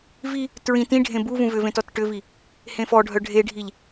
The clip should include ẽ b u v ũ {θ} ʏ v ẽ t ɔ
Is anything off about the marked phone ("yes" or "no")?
yes